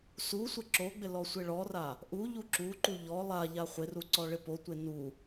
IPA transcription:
s u sʷ ɪ ǁ o ɡ͡b ɪ l ɔ sʷ ɪ ɭ ɔ r a | ʔ u ʎ u ǁ u ǃ u ʎ ɔ lˠ a ʎ a χʷ ɪ r u ǀ ɔ ɭ ɪ p o tʷ e n u

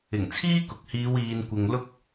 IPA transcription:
ɪ˨˩ ŋ t͡sʰ iː˥ k ʊ˨ k̚ h iː˨˧ w iː˨ n kʷ ɪ˨ ŋ l ʊ˧ k̚

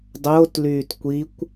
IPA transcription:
dˤ oː t l yː t kʷ i kʷ

